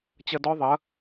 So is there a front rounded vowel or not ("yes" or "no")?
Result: no